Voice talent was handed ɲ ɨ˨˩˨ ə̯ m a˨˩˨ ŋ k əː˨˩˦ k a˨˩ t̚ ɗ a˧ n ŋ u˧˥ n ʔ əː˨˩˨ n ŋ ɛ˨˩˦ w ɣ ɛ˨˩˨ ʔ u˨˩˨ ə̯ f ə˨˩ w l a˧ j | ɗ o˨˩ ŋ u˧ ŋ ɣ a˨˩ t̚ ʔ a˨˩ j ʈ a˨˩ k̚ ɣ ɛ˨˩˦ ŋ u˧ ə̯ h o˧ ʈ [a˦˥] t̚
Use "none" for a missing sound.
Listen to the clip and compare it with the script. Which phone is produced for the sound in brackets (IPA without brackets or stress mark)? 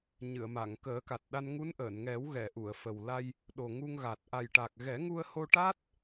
a˦˥